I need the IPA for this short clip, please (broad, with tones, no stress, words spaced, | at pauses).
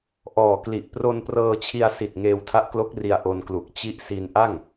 ʔɔː˨˩kli˨˩ʔ pro˧nprɤː˧t͡ɕʰi˧a̯si˨˩t̚ ŋeː˧wtʰa˦˥ʔklo˦˥k̚ri˧a̯ ʔo˧nklu˨˩k̚ t͡ɕi˦˥ʔsi˧n ʔa˥˩ŋ